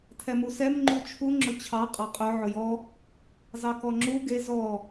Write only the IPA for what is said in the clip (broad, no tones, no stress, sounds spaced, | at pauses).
tʰ ɛ m u s ɛ m ŋ͡ǃ u t͡ʃʰ u ŋ͡ǁ ʊ t͡ɕʰ ɑ qʼ ɑ qʼ œ ʕ ʊ j ɔ | z ɑ k ɔ ŋ͡ǁ u ɡ e z ɔ